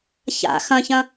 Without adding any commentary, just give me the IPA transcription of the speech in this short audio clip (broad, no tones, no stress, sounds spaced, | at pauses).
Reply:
ç a̰ x ɐ̃ ç ɐ̃